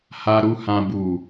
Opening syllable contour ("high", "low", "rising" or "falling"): low